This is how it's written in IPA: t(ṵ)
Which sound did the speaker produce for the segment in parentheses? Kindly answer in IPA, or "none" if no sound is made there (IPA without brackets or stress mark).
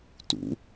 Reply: ṵ